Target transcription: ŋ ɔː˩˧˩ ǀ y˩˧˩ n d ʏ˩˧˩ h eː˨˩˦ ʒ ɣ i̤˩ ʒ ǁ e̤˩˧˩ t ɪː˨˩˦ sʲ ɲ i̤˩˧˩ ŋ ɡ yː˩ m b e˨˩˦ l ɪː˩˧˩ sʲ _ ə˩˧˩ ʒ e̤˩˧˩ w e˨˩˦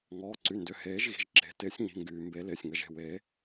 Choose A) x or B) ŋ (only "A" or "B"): B